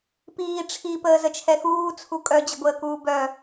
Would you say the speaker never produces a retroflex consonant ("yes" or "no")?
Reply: no